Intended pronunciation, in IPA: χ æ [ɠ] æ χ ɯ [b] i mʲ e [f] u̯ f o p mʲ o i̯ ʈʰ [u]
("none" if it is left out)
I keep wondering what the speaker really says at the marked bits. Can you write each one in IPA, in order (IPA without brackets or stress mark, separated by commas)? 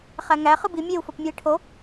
ŋ, b, none, o